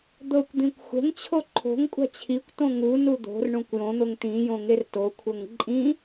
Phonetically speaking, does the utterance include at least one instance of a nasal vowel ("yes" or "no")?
yes